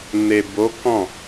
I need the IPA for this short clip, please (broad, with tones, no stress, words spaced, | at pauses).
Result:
ne˨bo˨˦ kɔ̃˦˨